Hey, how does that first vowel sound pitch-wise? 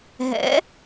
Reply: rising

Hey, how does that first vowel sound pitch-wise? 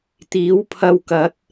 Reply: rising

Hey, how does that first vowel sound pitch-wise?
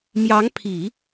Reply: rising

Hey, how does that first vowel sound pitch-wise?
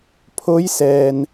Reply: rising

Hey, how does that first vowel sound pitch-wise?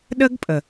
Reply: high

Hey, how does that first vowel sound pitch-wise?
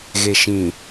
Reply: low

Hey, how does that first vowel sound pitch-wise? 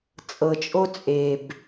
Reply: low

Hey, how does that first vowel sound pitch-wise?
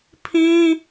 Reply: high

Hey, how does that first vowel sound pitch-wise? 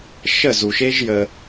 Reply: falling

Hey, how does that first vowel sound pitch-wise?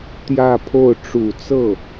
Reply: falling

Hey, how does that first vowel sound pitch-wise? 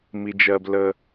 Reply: low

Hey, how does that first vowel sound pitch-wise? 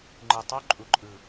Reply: low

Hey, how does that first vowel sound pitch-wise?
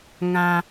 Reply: high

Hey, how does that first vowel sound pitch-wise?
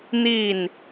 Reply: falling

